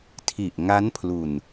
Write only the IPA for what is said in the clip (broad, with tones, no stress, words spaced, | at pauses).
tʰi˨˩ʔŋa˦˥n pʰlu˨˩n